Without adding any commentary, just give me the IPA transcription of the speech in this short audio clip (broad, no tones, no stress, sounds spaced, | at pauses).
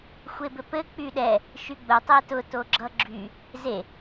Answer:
xʷ e b ɘ p ɘ k͡p y ɗ ɛ | ʃ y ɡ͡b ʊ tˤ e t ʊ t o ɡ͡ǁ ʌ ɡ͡ǁ y | z e